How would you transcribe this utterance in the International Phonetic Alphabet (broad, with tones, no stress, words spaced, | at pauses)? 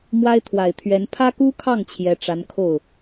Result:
mwa˥ɪ̯t̪ʰwa˨˩ɪ̯t̪ʰɥɛ˧˥n pʰä˥ku˥kʰɑ˥˩ŋ t͡ɕʰjɛ˧˥ʈ͡ʂa˧˥n kʰo˥˩ʊ̯